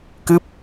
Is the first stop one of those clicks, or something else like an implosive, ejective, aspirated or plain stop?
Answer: plain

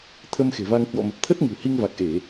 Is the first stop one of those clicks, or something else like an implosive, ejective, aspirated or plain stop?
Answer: aspirated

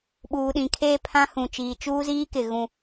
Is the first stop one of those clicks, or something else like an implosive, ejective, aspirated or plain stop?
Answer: implosive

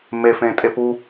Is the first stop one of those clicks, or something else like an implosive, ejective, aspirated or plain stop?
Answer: ejective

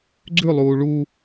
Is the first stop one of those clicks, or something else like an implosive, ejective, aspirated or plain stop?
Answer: click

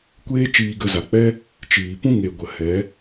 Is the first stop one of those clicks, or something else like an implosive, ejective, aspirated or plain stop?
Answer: plain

